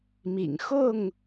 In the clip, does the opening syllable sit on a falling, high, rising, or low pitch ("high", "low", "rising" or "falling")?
low